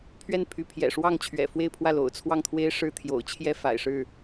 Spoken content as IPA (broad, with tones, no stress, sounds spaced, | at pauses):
pʰ ɥ ɛ˥˩ n pʰ y˧˥ pʰ j ɛ̰˨˩ ʂ w ɑ˥˩ ŋ t͡ɕʰ ɥ ɛ̰˨˩ f w e˥˧ ɪ̯ pʰ w ä˥˩ l o̰˨˩ ʊ̯ t͡sʰ w ɑ˥˩ ŋ t̪ʰ w e˥ ɪ̯ ʂ ɻ̩˥ t̪ʰ j o̰˨˩ ʊ̯ t͡ɕʰ j ɛ˥ f a̰˨˩ ɪ̯ ʂ ɻ̩˥˩